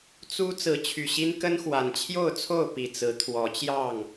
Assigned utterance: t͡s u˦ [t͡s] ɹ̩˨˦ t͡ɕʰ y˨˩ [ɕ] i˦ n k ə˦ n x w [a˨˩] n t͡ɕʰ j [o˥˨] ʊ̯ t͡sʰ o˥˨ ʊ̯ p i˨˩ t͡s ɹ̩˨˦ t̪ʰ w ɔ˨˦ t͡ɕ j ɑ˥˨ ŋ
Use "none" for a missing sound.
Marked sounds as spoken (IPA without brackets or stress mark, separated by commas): t͡s, ɕ, a˨˩, o˥˨